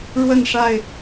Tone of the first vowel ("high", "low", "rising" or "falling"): falling